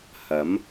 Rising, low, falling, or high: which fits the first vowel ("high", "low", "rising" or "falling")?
rising